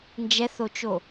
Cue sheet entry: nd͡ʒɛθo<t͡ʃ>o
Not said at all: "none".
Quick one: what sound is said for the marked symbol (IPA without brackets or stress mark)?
t͡ʃ